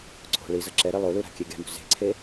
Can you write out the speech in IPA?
ǀʰo̤ ɭizʌ ǁɛɾe lˠolu ɾa̤kʲeɡʲa̤mṳ ze̤ǀʰe

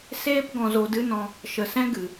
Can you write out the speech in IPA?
seː˦p ɡɔ̃˧zo˧dɨ˦nɔ̃˧ | ʃə˨sɛ̃˦ ɡɨ˨

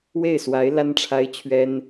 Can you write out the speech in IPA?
we˥˩ɪ̯swa˧˥ɪ̯ la˥nʈ͡ʂʰa˥ɪ̯t͡ɕʰɥɛ˥n

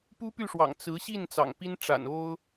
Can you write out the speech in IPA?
pu˥py˥˩ʂwɑ̰˨˩ŋ t͡sɹ̩˧˥ɕi˥˩n t͡sɑ̰˨˩ŋpi˥n ʈ͡ʂa̰˨˩no˥ʊ̯

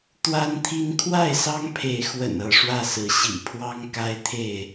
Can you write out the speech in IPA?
t̪wa˦nt̪ʰi˦n kʰwa˥˨ɪ̯sɑ˦ŋpʰe˨˦ɪ̯xwə̰˨˩n ɤ˥˨ʂwä˥˨sɹ̩˨˦ ɕḭ˨˩pʰwɑ˦ŋ ka˦ɪ̯t̪ʰe˥˨ɪ̯

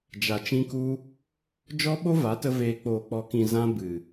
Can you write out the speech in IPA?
d͡ʒa˨t͡ʃĩ˧ku˧ | d͡ʒɔ˦ɓo˦va˨˦tə˧ veː˨k͡poː˨k͡pɔ˨kĩ˨ zã˧ bɨ˨

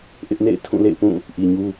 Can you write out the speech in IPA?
ʔɪ˦ʔnḛ˦˨ɪ̯ tʰũ˦˨lḛ˦˨ɪ̯pũ˦˨ | ʔi˨ɲu˦

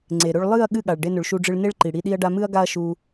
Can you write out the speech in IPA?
ŋ͡ǀe˨ɾɵ˦ɭ lˠɨ˦˨ɐ̯ ɠɨ˦˨ɠa˨ɭ ɖe˧nɵ˨ɭʃu˧ɖ͡ʐɨ˧ɭ ne˦ɭǃi˨ɽi˧ ɗi˦ɐ̯ɖa˦ mɨ˦ɐ̯ɡa˦ɐ̯ʃu˧

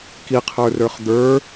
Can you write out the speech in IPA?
kiqʰə˞rə˞χ d̪ə˞

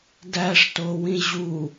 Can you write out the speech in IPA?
dæʂtowĩ ʑu

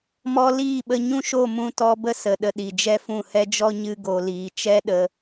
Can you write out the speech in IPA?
mɔ˧ liː˦˨ɓə˧ ɲũ˦ʃo˦˨ mũ˧tɔ˧ bə˦sə˨ ɗə˧ɗi˨d͡ʒɛ˦fũ˦˨ hɛ˦d͡ʒɔ˦ ɲɨ˦ɡo˧liː˧ t͡ʃɛ˦ɗə˧

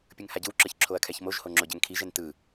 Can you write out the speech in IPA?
pʲɯŋhaɟɯwǁɯç ǁʰoɐ̯kʰɛçmoʒho ŋ͡ǁoɟɛŋkʰiʒɛn tɯ

